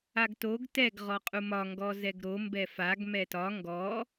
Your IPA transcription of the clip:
aɡtoɡ tɛɡ ʁɔqʼumɒ ŋɡɔzɛɡɾo mbɛfaɡ mɛtɒ ŋɡɔ

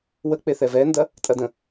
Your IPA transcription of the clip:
wə k͡peθɛvɛndɐ | tʼɐdə̃

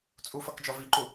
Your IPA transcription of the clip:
t͡sʼufʌkd͡ʒɔ viǃu

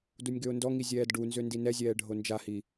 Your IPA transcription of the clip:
dunʲɡøʊ̯ndɔŋi zʲɛːdɖunzø ndinɛzʲɛː ɖʱond͡ʒahi

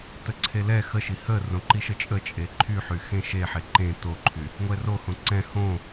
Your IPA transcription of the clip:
təǀʰelɛ xəʃi hə rõǃiʃət͡ʃʼə t͡ʃʼeǃʰy ħyxẽʃeħe ǃẽ toǃʰy | ŋʷɛrohõ ǀɛ̃ hõ

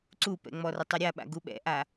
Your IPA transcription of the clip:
ǀupɛ̰ŋ͡mɔrə tˤœɾʲaɓa̰ ɡuɓɛ̰ʔa

